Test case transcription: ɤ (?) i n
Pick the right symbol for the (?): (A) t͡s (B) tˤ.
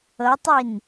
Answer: B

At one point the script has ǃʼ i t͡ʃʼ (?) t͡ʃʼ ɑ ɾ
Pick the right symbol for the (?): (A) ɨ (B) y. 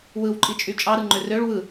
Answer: B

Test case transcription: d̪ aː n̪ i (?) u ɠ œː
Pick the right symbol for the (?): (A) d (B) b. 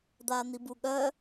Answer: B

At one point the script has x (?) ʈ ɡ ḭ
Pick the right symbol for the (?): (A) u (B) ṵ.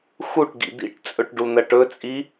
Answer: A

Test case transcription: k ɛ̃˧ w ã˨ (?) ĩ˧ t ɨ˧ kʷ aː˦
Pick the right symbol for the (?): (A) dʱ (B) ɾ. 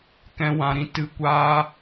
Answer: B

